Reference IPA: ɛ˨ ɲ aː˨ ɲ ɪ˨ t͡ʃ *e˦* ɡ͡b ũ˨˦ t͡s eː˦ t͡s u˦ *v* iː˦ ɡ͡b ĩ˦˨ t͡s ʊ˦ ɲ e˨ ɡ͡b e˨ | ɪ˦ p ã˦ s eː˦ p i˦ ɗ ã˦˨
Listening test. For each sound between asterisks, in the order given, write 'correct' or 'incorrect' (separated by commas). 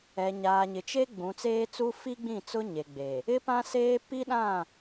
correct, incorrect